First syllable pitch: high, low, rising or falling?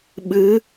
rising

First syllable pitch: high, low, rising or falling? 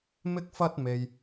high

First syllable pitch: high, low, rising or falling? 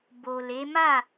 low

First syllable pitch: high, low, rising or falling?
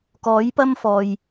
rising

